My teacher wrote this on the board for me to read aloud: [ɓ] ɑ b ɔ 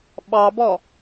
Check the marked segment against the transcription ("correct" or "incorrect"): correct